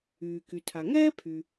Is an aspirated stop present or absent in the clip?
present